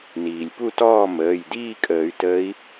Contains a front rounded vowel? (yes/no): yes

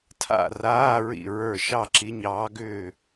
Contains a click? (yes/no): yes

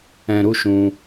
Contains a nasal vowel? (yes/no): yes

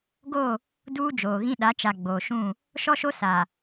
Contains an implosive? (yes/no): yes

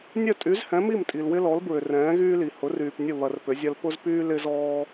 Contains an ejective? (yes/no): yes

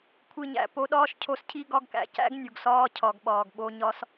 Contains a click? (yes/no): no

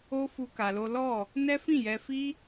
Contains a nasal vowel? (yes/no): yes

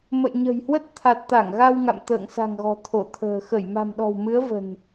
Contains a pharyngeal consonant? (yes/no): no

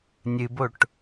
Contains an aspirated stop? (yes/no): no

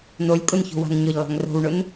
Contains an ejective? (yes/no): yes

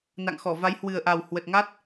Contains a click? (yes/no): no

